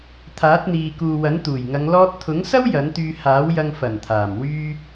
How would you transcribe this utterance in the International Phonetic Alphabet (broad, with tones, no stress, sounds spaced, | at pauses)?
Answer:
t̪ʰ aː˨˥ t̚ n̪ iː˨ k uː˨ w ɐ˨˥ n t̪ uː˨˩ j ŋ ɐ˨˧ ŋ l ɔː˧ t̚ t̪ʰ ʊ˨˥ ŋ s ɐ˥ w j ɐ˨˥ n t̪ yː˧ h aː˨˥ w j ɐ˧ ŋ f ɐ˨˩ n t̪ʰ aː˨˩ m w yː˧